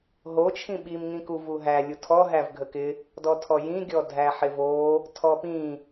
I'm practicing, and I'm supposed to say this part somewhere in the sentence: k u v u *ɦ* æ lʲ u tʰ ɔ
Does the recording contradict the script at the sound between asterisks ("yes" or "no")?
no